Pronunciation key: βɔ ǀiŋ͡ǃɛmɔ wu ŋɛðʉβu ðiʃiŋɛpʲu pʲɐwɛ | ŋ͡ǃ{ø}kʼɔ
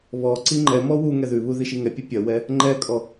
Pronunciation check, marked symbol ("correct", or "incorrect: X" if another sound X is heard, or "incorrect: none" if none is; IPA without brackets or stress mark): incorrect: ɛ